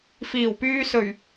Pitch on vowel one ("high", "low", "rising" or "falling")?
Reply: low